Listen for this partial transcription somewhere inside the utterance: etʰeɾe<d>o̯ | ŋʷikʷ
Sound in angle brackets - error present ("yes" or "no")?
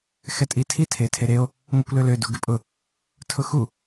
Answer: yes